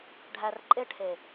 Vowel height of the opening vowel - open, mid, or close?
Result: open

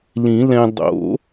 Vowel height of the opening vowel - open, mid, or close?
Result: close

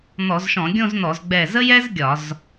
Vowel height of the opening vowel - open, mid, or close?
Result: mid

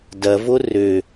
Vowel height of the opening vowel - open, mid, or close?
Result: open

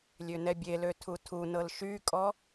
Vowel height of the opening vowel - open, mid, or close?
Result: mid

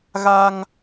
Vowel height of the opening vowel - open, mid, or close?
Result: open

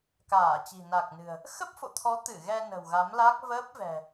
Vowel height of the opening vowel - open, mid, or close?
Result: open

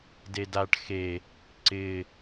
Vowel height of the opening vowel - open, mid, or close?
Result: mid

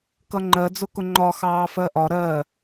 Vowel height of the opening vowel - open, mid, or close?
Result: mid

